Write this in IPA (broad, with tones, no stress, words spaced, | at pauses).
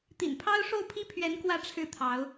t̪ḭ˨˩npʰɑ˥ʊ̯ ʂo˥˩ʊ̯pʰi˥pʰɥɛ˧˥n kwä˥˧ʈ͡ʂʰɻ̩˥˩ t̪ʰɑ˧˥ʊ̯